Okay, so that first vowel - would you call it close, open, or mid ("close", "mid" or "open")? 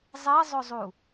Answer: mid